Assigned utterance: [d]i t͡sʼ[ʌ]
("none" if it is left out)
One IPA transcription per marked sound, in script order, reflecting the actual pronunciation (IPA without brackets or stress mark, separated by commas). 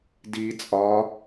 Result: d, ɒ